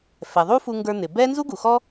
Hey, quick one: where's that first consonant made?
lips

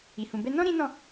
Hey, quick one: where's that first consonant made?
throat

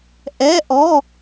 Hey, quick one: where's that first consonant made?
throat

